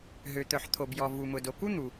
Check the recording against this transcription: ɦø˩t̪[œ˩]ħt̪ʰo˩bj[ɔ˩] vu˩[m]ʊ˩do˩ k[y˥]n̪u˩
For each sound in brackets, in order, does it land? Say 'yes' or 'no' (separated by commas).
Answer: yes, yes, yes, no